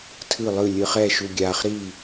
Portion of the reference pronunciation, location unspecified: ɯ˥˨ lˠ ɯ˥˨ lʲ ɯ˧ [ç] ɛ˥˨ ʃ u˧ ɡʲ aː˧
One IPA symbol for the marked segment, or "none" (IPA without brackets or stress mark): χ